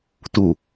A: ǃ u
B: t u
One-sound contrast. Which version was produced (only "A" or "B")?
B